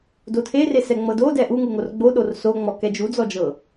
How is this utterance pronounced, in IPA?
d o tʰ e r e s ɛ ŋ͡m ɤ d o d ɛ ʔ u ŋ u ŋ o r ɡ͡b o ɗ o r s o ŋ͡m ɔ k ɛ d͡ʒ u d͡z ɔ d͡ʒ ɤ

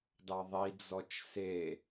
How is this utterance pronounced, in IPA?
d ɑ ðˤ i d͡z ɔ t͡ʃ s e

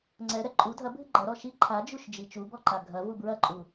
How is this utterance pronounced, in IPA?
ŋ͡ǀ ɛ ɾ ɛ ǃʼ u dʱ ɐ bʱ ɨ ɡ͡ǃ ɐ ɾ ɔ ʃ i ǃʰ a d͡ʒ u ʃ d͡ʒ i t͡ʃ u b ɔ ǃ a ɡʱ ɐ v u b ɹ ɐ ǃʼ u

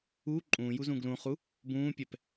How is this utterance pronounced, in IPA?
u ǃʼ ũː j u z ũ ɡ l ũ χ u | b ũː pʲ ɛ p

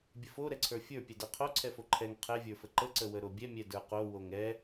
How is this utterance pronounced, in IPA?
bʲ ə f o ɾ ɛ ǀʰ ə˞ fʲ ə˞ pʲ ɛ d ɛ qʰ o ǀʰ ɛ f o ǃʰ ɛ ŋ qʰ ɛ vʲ ə˞ f ə ǃ ə ǀ ə w ə ɾ o bʲ ɛ mʲ ɛ d ə˞ q o w o ŋ ɛ

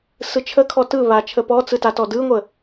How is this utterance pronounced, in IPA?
s ɯ t͡ʃʰ ə kʰ ɔ t ɯ β a t͡ʃʰ ə p ɔ t͡s ɯ t a t ɔ d ɯ ŋʷ ə

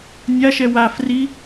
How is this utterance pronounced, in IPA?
nʲ a ʃ ɛ w a f r i

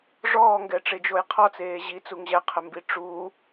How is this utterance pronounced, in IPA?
ʐ ɔː ŋ ɡ ɛ ʈ͡ʂ e d͡ʒ o j qʰ ɔ t͡s eː ʑ i t͡s u ŋ ʑ ɛ qʰ ɛ m b i ʈ͡ʂ u

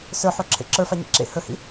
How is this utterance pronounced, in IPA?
s ə˞ ħ o ǁʰ ḛ ǁ ə˞ f a ɲ ḛ ǁ ḛ h ɵ h ḭ

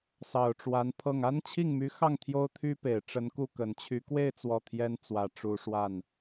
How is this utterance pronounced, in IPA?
s ɑ˨˩ ʊ̯ ʈ͡ʂ w a˧˥ n pʰ ɤ˥˩ ŋ a˥ n t͡ɕʰ i˥˩ ŋ m y˧˥ x ɑ˥˩ ŋ t̪ʰ j o˥ ʊ̯ t̪ʰ y˥ p e˨˩ ɪ̯ ʈ͡ʂ ə˧˥ n k u˥˩ k ə˨˩ n t͡ɕʰ y˧˥ k w e˥˧ ɪ̯ t͡s w ɔ˥˩ t̪ʰ j ɛ˥ n t͡s w ä˧˥ ʈ͡ʂ u˧˥ ʂ w a˥˩ n

